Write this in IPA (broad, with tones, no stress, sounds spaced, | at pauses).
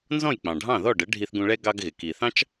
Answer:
n z ɔ̃˥˩ j k͡p ɑ̃˩ ɖʱ ɑ̃˥˩ ð ɔ˥˩ ɖ ə˩˥ ɖʱ i˧ θ ɡ ũ˧ ɭ ɛ˥ ɡ ɑ˧ ɡ ɣ ɪ˩ k i˩ θ ɑ̃˥ t͡ʃ